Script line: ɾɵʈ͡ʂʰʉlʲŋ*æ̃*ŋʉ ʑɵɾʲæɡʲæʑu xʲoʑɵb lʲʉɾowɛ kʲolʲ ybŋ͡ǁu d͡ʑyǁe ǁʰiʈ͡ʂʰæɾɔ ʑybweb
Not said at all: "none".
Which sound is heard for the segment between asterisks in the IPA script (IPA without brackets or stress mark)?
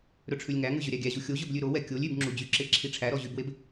æ